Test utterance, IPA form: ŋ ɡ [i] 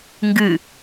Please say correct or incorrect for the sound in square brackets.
incorrect: ɨ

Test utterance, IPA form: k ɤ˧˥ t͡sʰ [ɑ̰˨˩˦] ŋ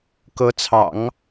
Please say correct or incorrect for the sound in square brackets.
correct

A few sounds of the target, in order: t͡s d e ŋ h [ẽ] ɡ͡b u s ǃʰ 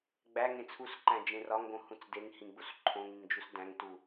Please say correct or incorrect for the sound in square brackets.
incorrect: ĩ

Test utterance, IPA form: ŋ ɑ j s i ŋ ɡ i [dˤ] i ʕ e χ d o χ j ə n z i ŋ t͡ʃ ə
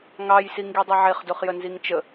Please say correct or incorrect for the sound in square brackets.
correct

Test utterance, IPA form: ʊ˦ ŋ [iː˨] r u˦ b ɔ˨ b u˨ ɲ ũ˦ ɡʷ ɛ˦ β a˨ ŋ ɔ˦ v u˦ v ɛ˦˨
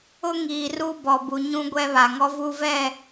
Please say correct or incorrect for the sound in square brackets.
correct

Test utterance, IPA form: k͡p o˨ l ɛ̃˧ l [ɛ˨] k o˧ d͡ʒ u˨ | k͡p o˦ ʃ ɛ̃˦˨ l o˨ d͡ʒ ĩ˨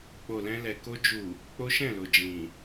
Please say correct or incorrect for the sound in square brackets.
correct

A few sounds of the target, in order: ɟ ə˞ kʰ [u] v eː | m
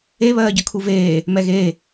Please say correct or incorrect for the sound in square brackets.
correct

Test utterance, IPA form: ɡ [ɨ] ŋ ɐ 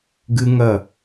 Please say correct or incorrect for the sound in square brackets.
correct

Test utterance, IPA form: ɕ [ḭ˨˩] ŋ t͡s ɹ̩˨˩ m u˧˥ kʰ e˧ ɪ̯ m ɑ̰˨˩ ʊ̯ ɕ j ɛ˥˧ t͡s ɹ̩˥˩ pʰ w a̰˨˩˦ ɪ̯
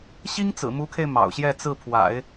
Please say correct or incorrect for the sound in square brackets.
incorrect: i˥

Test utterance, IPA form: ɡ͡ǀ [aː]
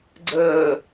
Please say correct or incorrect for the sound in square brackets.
incorrect: əː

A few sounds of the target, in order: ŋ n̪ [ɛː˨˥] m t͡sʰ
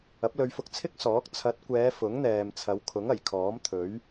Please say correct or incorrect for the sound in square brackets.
incorrect: ɛː˨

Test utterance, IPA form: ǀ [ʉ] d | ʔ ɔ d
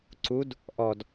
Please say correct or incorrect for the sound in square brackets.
incorrect: u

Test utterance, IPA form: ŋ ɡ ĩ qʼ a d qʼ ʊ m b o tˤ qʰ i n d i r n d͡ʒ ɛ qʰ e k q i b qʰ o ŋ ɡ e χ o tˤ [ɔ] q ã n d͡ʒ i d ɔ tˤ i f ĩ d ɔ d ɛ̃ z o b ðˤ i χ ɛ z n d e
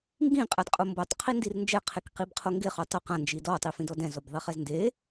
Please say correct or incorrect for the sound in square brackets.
incorrect: ʊ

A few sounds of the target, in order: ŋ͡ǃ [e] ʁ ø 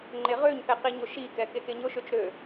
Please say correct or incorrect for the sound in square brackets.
correct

